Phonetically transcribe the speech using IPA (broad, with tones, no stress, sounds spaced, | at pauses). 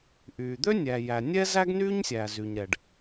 ʔ y˩ d̪ ø˥ nʲ æ˩ j æ˩ nʲ ɛ˥ z æ˥ ɡ n y˥ ɲ sʲ æ˩ z y˩ ɲ ɾ ɛ˩ ɖ